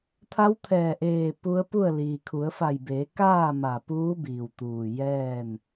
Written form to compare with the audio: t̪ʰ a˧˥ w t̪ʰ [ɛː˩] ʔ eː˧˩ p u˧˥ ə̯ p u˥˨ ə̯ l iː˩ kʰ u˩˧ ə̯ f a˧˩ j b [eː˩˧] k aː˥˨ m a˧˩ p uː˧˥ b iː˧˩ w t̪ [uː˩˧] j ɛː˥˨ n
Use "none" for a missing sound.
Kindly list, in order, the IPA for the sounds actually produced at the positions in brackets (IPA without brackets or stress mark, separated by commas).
ɛː˧˩, eː˩˧, uː˧˩